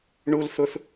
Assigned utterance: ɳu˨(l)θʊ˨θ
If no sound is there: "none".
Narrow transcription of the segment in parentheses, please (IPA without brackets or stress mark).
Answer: l